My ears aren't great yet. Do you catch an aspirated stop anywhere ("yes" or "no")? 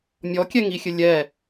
no